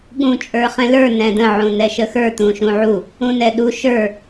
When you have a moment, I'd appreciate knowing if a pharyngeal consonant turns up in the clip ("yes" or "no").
yes